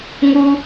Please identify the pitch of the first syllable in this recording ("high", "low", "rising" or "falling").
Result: high